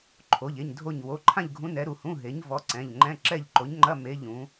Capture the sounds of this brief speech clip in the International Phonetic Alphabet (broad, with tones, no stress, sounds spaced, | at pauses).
ǃʰ o˩˧˩ ʎ e˩˧˩ ɲ dʱ o˦˨ ɲ w o˩˧˩ ǃʰ ã˦˨ ʎ ɡʱ ũ˨˥ n ɛ˨˥ ɾ u˩˧˩ h ũ˧˥˧ ɦ e˨˥ ɲ v ɔ˨˥ ǀ ɛ̃˩˧˩ ʎ ŋ͡ǃ ɛ̃˧˥˧ ǁ ɛ˦˨ ʎ ǃ o˨˥ ɲ ŋ͡ǃ ɐ˧˥˧ m e˧˥˧ ʎ ũ˨˥